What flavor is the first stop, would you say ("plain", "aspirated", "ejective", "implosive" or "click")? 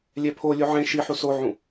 aspirated